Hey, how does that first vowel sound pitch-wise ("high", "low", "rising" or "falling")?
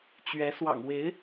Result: rising